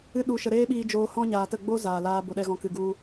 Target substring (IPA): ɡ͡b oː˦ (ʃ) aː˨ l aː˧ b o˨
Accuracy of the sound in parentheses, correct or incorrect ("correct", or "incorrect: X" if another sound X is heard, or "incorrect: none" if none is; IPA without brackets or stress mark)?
incorrect: z